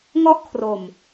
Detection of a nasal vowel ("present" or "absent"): absent